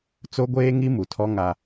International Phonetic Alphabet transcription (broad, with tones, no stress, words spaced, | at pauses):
t͡so˦ɡʷeː˦ŋi˦ mu˨tʰɔ˦ ŋa˦